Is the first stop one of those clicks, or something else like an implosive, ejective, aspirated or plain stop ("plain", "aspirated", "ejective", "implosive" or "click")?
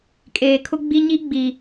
ejective